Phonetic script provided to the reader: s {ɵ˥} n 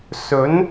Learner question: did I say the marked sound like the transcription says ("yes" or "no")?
no